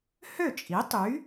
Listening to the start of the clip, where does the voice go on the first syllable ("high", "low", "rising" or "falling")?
falling